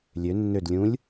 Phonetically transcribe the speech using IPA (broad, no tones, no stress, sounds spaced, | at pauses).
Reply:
lʲ ø nː ø d lʲ ũ lʲ